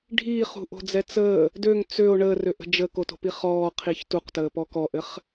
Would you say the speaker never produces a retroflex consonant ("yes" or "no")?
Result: no